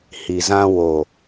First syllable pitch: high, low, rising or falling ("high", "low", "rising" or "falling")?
low